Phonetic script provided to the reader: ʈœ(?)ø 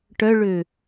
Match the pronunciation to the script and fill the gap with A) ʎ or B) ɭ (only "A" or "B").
B